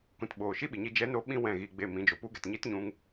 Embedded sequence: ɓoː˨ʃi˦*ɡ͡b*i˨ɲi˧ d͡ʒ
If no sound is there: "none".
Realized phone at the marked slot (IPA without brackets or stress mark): ɓ